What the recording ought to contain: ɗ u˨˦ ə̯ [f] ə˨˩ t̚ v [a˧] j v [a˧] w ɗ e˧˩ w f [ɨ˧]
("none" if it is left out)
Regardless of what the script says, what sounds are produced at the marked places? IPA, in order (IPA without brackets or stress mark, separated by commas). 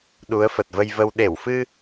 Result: f, ə˧, ə˧, ɨ˧